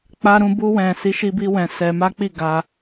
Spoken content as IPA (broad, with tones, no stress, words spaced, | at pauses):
k͡pa˧ɾũ˧ bu˧wɛ̃˨ si˨˦ʃi˧bi˧wɛ̃˨ sɛ˧ma˦k͡pi˦˨ ɡa˧